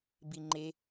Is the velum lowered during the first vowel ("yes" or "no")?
no